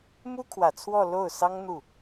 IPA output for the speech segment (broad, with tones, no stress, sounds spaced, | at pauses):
m u˥ kʰ w ä˨˩ t͡sʰ w ɔ˥˧ l o˥˩ ʊ̯ s ɑ˥ ŋ n̪ u˥˩